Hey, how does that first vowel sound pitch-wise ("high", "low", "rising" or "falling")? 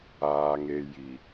low